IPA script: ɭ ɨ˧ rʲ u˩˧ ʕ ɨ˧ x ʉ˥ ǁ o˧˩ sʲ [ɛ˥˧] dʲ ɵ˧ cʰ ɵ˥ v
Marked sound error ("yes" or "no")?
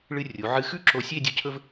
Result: yes